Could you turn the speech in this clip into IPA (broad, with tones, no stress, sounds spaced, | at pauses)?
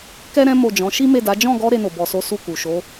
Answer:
k ɛ˦ ɾ ɛ̃˦ m o˦˨ d͡ʒ ɔ̃˨˦ ʃ i˦ m e˦˨ d a˨˦ d͡ʒ ɔ̃˦˨ ɡ ɔ˧ ɾ e˧ n o˨ b ɔ˨ s o˨˦ s u˦˨ k u˨ ʃ o˨˦